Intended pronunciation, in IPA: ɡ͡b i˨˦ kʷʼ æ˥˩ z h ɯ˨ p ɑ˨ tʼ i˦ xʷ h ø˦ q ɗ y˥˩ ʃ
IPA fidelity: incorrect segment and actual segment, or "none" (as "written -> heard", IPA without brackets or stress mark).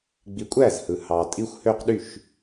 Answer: p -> h